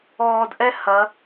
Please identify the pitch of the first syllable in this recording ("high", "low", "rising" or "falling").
low